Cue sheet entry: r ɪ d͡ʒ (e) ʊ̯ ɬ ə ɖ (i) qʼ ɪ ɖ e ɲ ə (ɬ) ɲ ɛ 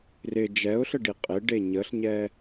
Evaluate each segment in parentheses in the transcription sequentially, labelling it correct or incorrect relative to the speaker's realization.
incorrect, correct, correct

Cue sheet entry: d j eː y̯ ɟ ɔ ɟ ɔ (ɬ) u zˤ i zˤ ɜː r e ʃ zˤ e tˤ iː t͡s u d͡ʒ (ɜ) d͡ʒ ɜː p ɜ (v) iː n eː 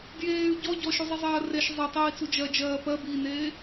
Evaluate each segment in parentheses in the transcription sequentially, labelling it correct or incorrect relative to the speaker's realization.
incorrect, correct, incorrect

